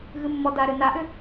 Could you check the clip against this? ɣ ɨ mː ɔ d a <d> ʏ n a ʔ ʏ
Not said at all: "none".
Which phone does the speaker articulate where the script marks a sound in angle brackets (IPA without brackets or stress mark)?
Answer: ɾ